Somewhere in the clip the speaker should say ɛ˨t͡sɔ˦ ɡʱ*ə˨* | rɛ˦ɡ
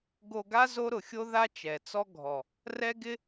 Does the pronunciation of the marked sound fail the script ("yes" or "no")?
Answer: yes